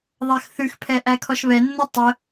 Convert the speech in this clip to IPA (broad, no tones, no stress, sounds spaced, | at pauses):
ðˤ æ x θ ʉ x pʰ ɛ ʔ æ kʰ ɔ ʃ β ɛ nː o tˤ ə